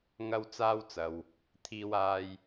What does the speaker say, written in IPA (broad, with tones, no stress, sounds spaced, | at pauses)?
ŋ ɐ˥ w t͡s aː˥ w t͡s ɐ˨ w | t̪ʰ iː˥ w aː˥ j